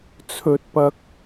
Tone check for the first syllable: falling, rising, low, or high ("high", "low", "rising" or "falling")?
rising